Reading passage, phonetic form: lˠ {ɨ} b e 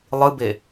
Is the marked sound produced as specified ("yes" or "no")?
yes